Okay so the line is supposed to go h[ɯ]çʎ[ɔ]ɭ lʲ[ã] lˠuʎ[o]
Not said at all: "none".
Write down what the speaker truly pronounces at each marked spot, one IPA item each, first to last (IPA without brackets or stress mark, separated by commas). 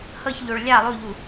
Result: ɤ, o, a, u